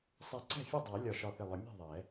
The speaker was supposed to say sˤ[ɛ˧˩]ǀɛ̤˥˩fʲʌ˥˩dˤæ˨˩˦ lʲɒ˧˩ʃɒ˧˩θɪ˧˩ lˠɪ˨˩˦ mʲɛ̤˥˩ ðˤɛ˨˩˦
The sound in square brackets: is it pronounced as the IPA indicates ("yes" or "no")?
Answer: yes